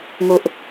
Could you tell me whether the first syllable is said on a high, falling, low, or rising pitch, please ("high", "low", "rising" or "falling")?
low